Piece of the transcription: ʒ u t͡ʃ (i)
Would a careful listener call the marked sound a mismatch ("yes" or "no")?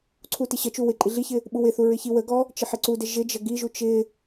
yes